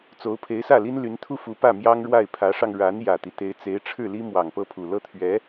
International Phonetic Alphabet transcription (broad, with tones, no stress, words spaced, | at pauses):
t͡so˧˥ʊ̯pʰe˧˥ɪ̯sä˥˩li˥n ly˧˥nt̪ʰu˥fu˧˥ pä˥˩mjɑ˥ŋɻwa˥˩ɪ̯ pʰä˧˥ʂɑ˧ŋ ɻa˧˥n jä˨˩t̪i˦ t̪e˧˥ɪ̯ t͡se˧˥ɪ̯ʈ͡ʂʰɻ̩˥˩li˥ mwɑ˨˩ŋpɤ˥˩pʰu˨˩ lɤ˥˩t̪ʰɥɛ˧˥